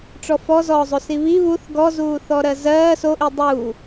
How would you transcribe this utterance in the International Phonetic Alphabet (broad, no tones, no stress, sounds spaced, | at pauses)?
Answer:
ʈ͡ʂ ɔ f ɔ z ɔː zˤ o s i β i β u θ ɡ ɔ z uː θ ɔ ɾ ɜ z ɜː s o ʔ i dˤ uː